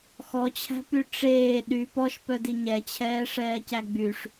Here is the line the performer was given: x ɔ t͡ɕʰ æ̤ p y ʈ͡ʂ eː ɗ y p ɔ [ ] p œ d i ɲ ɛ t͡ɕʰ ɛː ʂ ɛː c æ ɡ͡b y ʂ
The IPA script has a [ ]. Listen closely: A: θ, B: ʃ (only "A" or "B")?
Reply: B